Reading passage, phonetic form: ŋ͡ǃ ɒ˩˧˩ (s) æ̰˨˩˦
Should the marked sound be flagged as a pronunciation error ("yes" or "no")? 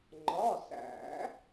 no